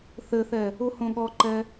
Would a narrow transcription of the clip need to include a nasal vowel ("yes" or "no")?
yes